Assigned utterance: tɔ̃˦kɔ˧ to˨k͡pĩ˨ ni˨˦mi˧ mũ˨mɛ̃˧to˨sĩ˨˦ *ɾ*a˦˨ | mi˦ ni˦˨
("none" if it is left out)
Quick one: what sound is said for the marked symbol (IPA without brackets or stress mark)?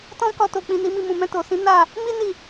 n